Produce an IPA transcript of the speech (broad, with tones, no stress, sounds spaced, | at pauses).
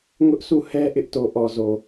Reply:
ŋ ʊ˦ ʔ s u˦˨ h ɛ˦ ʔ ɪ˦ ʔ t o˨ ʔ ɔ˨ z o˨